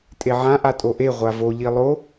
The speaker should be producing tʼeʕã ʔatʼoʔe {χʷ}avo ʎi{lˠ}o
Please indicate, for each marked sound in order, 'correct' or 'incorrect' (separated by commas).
incorrect, correct